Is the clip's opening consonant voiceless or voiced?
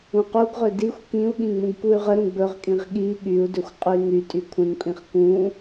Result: voiceless